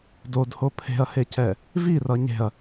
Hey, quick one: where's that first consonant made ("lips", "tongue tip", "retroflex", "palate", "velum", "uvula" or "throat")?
tongue tip